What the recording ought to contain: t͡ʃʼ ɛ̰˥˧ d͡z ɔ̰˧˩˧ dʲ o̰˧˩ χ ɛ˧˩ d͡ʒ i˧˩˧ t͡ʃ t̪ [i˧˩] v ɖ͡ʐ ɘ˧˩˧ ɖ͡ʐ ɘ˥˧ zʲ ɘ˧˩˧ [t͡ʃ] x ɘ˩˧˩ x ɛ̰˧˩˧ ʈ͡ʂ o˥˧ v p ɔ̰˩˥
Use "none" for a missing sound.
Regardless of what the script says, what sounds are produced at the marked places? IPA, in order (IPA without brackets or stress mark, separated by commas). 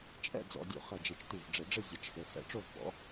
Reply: i˧˩, t͡ʃ